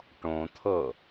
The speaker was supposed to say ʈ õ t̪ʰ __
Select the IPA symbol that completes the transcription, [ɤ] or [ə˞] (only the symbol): ɤ